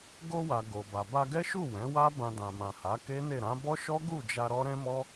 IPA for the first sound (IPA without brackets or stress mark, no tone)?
ɡ